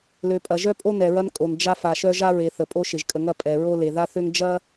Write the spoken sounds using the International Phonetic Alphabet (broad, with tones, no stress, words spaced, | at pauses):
lø˨pʼɐ˨ʒœ˦pʼo˦ nɛ˨ɹɐ˦nkʼo˨n d͡ʒa˦ fa˨ʃœ˦ʒa˦ɹe˨ θə˨pʼo˦ʃɪ˨ʒ kʼə˨ŋɐ˦˨ pʼɛ˨ɹo˦le˨ ða˦θø˦ŋ d͡ʒɐ˦